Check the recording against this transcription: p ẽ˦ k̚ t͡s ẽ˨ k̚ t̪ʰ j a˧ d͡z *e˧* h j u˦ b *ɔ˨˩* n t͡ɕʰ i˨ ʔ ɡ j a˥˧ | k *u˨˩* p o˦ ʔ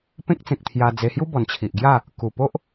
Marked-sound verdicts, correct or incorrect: correct, correct, correct

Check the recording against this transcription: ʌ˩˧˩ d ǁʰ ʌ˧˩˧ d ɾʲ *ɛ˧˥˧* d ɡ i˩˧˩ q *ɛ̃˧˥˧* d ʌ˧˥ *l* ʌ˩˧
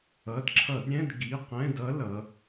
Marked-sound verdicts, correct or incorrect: incorrect: ɛ̃˧˥˧, correct, correct

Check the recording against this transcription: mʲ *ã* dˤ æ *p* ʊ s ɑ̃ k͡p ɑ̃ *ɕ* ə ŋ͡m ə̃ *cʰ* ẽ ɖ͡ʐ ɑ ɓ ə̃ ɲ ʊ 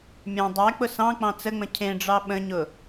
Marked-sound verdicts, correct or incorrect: correct, incorrect: k͡p, incorrect: t͡s, correct

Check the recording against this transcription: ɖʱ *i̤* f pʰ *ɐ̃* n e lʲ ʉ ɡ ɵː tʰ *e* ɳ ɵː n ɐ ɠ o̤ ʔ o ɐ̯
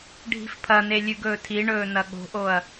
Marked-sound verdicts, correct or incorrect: correct, incorrect: ɐ, incorrect: i

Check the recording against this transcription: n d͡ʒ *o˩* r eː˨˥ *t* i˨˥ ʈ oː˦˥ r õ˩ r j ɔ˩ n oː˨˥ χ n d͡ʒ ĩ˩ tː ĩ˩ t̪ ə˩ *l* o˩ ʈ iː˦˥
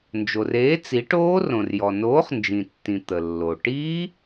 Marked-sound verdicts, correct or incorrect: correct, incorrect: t͡s, incorrect: lː

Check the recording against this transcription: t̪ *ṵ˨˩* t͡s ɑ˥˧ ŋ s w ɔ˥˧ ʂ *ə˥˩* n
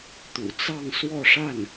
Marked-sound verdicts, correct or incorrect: correct, incorrect: a˥˩

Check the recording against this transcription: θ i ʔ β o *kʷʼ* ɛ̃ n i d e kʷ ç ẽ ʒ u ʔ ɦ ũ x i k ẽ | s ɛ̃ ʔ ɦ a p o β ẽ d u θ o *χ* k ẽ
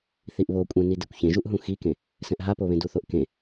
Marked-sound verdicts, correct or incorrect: correct, incorrect: ʔ

